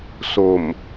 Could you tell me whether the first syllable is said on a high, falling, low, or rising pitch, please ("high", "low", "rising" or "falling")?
low